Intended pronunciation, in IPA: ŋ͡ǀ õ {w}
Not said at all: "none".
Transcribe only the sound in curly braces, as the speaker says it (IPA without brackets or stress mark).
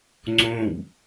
w